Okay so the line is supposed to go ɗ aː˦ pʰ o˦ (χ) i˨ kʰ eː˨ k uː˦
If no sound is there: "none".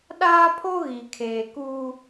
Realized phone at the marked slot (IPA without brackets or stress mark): ɣ